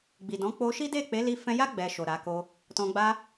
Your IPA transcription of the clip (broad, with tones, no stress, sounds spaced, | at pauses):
ɡ͡b i˨ d ɔ̃˨˦ k͡p o˧ ʃ i˦ d e˦˨ k͡p e˨˦ l i˧ f ɛ̃˧ j a˦ ɡ͡b ɛ˧ ʃ o˨ ɾ a˨˦ k o˦ | t ɔ̃˧ ɡ͡b a˧